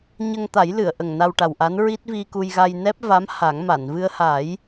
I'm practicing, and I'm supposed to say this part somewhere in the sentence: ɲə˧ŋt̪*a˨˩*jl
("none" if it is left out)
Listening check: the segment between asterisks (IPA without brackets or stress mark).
a˨˩˦